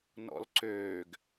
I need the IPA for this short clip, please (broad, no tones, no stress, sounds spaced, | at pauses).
n ɔ̰ l ǀ øː ɡ